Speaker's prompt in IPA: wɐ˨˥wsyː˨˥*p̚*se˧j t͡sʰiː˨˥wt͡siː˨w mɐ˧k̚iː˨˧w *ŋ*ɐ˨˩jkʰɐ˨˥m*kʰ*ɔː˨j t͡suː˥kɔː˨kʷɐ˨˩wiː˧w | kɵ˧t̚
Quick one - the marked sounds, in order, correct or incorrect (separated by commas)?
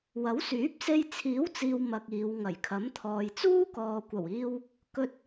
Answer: correct, correct, incorrect